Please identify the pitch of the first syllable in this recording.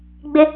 high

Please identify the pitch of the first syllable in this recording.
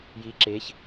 rising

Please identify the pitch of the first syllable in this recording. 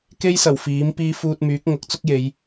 high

